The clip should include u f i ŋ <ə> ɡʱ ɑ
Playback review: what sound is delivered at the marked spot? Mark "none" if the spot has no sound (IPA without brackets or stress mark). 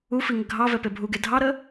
ə